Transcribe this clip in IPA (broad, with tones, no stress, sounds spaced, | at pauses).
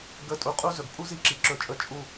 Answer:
ɡ ə˦˨ tʼ u˧ qʼ u˦ z ɵ˨ ɡ pʼ u˦ z i˦ ǁ i˨ ǁ ɵ˧ t͡ʃʼ ə˦˨ t͡ʃʼ u˦˨